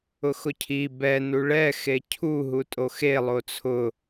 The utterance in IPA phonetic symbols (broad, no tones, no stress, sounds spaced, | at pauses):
ʊ x ʊ cʰ i b ɛ n u ɭ ɛ x e cʰ u ɦ u tʼ o x e lˠ o t͡sʰ ʊ